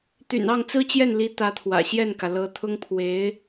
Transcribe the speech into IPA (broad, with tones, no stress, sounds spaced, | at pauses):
t̪ y̰˨˩ n ɑ˥˩ ŋ t͡s ɹ̩˥ t͡ɕ j ɛ˥˩ n l i˧˥ t̪ ä˧˥ t̪ʰ w ä̰˨˩ ɕ j ɛ˥˩ n k ä˩ l ɤ˧˥ t̪ʰ ʊ˥ ŋ pʰ w e˧˥ ɪ̯